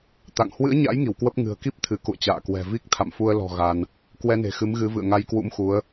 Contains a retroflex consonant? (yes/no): no